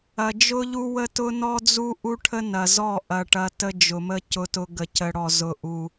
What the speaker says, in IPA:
ɐ˨ d͡ʒ ʊ˦ ʎ u˦ w ə˦ t ʊ˦ n ɔ˦ d͡z u˦ ʔ u˦ ʈʰ ə˦ n ɐ˨ z ɔ˦˨ ʔ ɐ˨ ʈ ɐ˦ t ə˦ d͡ʒ ʊ˨ m ə˦ c ʊ˦ t ʊ˦ ɡ ə˨ c ə˨ ɽ ɔ˨ z ʊ˦ ʔ u˦

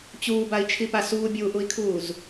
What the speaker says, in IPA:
t͡ɕ uː b a i̯ t͡ʃʰ i p a s uː bʲ uː ʔ u i̯ kʰ uː z

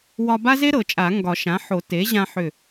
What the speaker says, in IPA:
w ɒ˧ b a˥ z e˥ ɾ ɤ˨˩˦ t͡ʃʼ a˨˩˦ ŋ ɡ ɒ˨˩˦ ʃ ã˩˥ ħ o˨˩˦ t e˩˥ ʑ ã˧ ħ ʏ˧˩

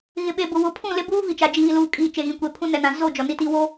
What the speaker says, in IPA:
ɣ ɪ˨ ɓ e˨ b ʊ˨ w ʊ˨˦ pʰ ũ˦˨ l ɪ˦ b uː˦ v i˨ t͡ʃ a˨ d͡ʒ iː˨ l uː˨ kʼ iː˨ t͡ʃ e˨ ɣ ĩ˨ kʷ e˨ pʰ ũ˦ n ɛ˨ n ã˨ z o˦˨ d͡ʒ ɔ˨ n i˦ t i˦ w o˦

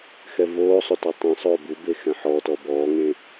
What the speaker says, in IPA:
x ɛ v oː sˤ o t ɔ tˤ ẽ sˤ oː b u b e x ɛ̃ ħ ɔː t ɔ b ɔː ŋ ẽ

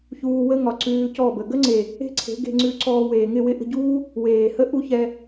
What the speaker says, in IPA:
ç uː˧ w ə˦ ŋ ɒ˨ ǀ ʉː˧ c ɔ˦˨ b ə˨ ɡ ə˦ ŋ͡ǀ e˨ | e̤˦ ǀʰ e̤˨˦ ɡ e̤˧ ŋ͡ǀ ʉ˧ ǀ ɔː˧ w eː˨ ŋ ɪ˦˨ w ɪ˦ ʔ ə̤˧ ɟ uː˦ | w eː˨ h ə˦ ʔ u˦ ç ɛ˧

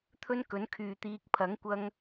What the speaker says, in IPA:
t̪ʰ ɵ˥ n k ɵ˨˥ n kʰ yː˨ t̪ iː˧ k̚ pʰ ɐ˨˥ ŋ kʷ ɐ˧ ŋ

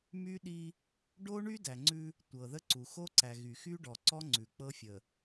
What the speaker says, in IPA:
m y˦ ɗ i˦ | ɖ o˦ ɳ y˦ d æ˨ ŋ͡ǀ ʉ˦ | tʷ ɤ˨ ð ə˦ ǀ u˨ x o˦ ǀ æ˨ ɣ y˨ x y˦ ɖ ɔ˨ ǀ ɔ˦ ŋ͡ǀ ʉ˨ k͡p ɤ˦ fʲ ə˨

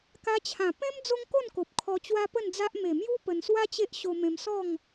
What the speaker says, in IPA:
k a˧ t͡ɕʰ ã˨˩ p ẽ˦ m d͡z o˦ ŋ k o˥˧ n k o˨ p̚ kʰ ɔ˧ t͡ɕ w a˦ p ə˥˧ n d͡z a˦ ʔ m e˨˩ m j u˦ p ə˧ n s w a˦ t͡ɕ e˦ ʔ ɕ o˧ m ẽ˧ m s ɔ˥˧ ŋ

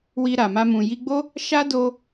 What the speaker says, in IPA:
w i˧ ɾ a˨ m a˧ m ũ˨ j i˧ ɡ͡b o˦ | ʃ a˦ d o˧

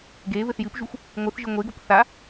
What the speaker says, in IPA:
ɡ e β ɘ θ j ɨ p ʒ u xʷ | ŋʷ ɨ θ ʒ ɨ ŋʷ e ɡ o p θ a

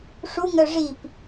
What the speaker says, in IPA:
ʂ u ŋ œ ʐ i p

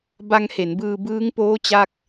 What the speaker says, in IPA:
b a˧ ŋ h e˩˦ n b ɯː˧ b ɯː˦˥ ŋ p oː˦˥ t͡ɕ a˥˩ k̚

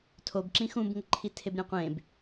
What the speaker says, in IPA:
tʰ o b ǁ ĩ x ũ b ŋ ə ǃʰ i tʰ e b ɾʲ ɛ̃ qʷ ẽ b

